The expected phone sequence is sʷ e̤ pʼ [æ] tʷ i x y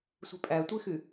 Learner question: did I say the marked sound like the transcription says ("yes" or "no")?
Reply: yes